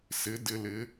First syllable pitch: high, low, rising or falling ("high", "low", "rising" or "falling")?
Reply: rising